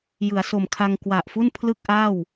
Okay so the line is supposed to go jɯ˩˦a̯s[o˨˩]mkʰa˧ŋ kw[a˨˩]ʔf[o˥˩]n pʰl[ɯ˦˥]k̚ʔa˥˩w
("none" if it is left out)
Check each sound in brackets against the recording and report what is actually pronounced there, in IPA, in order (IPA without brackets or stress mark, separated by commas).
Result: o˨˩, a˨˩, u˥˩, ɯ˥˩